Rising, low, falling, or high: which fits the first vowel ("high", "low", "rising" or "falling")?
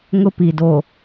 high